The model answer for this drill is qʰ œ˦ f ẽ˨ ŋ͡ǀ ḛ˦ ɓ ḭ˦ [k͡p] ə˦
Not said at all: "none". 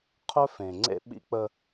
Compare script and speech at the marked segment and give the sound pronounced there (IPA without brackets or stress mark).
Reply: k͡p